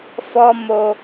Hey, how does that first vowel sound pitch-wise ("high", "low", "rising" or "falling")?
high